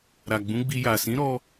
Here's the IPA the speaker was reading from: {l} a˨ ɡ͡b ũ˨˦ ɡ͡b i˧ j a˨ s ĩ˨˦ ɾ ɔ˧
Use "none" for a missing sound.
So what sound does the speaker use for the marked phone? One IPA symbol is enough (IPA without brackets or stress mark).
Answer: ɾ